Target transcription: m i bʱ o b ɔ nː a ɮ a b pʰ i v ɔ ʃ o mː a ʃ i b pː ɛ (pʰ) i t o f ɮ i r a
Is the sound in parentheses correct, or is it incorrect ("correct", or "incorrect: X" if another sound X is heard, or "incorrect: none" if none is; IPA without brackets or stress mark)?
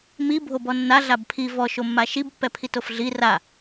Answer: correct